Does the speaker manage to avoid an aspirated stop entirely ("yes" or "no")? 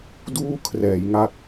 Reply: no